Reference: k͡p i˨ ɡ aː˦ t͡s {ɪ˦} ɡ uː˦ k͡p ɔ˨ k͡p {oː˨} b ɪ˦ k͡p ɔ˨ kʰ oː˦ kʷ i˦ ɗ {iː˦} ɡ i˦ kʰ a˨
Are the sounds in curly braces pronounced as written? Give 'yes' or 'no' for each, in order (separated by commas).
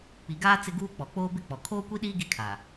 yes, no, yes